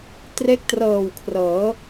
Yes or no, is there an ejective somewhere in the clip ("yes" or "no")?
no